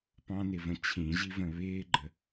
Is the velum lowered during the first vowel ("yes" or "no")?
yes